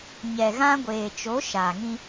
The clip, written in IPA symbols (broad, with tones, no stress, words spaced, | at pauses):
ɲɛ˨ɣã˦ ɡʷeː˨ t͡ʃo˨˦ ʃaː˨ŋĩ˦